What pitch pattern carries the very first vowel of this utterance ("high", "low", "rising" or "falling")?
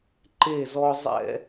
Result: falling